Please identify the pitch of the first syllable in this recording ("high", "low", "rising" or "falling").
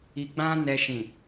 low